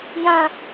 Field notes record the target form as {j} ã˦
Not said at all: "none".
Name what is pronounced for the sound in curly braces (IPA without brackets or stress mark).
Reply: j